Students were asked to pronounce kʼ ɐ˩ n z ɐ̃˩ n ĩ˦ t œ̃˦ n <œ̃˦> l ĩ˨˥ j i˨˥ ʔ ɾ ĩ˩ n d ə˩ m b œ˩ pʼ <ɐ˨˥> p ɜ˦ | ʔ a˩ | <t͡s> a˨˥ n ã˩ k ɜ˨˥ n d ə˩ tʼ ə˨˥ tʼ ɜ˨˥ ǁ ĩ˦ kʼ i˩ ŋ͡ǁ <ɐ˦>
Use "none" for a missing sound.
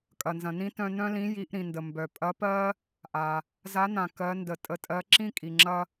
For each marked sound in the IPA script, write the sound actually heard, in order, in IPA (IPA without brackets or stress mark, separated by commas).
œ̃˦, ɐ˨˥, z, ɐ˦